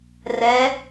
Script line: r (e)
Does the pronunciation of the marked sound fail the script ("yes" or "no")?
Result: yes